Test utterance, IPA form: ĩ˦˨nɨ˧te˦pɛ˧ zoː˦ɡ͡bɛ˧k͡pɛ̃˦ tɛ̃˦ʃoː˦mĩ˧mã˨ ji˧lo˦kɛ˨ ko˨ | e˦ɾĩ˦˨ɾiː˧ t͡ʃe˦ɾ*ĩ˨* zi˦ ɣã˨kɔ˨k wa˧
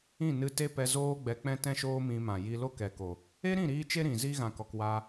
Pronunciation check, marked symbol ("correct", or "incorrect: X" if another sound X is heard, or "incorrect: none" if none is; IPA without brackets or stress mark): correct